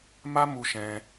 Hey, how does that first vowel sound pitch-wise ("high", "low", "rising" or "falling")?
high